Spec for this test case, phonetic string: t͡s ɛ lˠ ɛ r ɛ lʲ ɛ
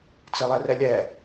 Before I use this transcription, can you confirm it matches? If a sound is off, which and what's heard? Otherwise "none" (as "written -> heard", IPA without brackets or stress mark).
none